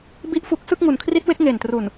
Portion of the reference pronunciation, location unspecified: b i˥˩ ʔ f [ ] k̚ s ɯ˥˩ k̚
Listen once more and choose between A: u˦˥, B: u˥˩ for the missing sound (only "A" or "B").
B